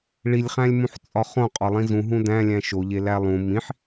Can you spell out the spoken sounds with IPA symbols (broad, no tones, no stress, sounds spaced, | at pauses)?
ɭ i lʲ χ æ̃ lʲ m ũ ħ t͡sʼ ɒ χ õ qʼ ɒ lˠ ĩ z ũ ɦ ũ d æ̃ lʲ æ̃ ʃ o ʎ e l æ lˠ ũ m ĩ ħ